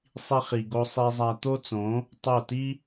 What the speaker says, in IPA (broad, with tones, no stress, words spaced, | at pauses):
sˤi˧χi˨ɡo˧ sˤi˧zˤæ˧ t̪o˦t͡sõ˨˦ | tˤo˦˨ ti˦